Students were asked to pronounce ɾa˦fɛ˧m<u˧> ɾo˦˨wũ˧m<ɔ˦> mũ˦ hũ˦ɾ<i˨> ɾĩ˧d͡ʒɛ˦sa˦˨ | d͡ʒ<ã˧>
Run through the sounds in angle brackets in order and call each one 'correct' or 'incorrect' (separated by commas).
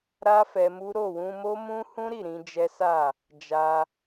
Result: incorrect, incorrect, incorrect, incorrect